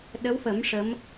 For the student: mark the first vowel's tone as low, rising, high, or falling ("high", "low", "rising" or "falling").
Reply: rising